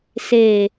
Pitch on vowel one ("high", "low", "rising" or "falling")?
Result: low